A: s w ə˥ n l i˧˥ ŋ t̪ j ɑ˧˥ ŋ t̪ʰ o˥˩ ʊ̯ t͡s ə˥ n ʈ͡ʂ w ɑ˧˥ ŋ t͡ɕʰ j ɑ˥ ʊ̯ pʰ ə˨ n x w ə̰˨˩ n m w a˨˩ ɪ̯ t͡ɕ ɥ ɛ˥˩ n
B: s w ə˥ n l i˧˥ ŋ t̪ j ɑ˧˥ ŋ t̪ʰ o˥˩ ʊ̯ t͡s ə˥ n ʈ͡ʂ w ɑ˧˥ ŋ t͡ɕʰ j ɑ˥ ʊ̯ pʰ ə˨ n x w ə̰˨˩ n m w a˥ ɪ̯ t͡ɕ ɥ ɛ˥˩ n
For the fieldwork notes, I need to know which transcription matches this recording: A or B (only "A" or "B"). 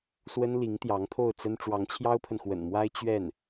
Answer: B